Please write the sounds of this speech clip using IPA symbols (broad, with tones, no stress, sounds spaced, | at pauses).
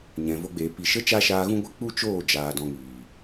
ɲ ɛ̃˨ v o˧ ɡ͡b eː˨ p i˨ ʃ ə˦ t͡ʃ a˦ ʃ aː˧ ɣ ũ˦ ɡʷ e˦ k͡p u˦ t͡ʃ oː˦˨ d͡ʒ aː˨ d ɔ̃˧ ŋ iː˨